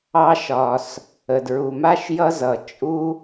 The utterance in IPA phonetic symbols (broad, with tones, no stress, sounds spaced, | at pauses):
ɑ˧ ʃ ɒ˩ s | ə˩ d ɹ u˩ m a˥ ʃ j ʌ˥ z ʌ˩ t͡ʃʼ u˥